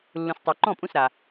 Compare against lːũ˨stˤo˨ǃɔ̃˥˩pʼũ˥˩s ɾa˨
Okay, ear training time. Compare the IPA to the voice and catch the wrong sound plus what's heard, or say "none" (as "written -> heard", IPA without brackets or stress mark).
none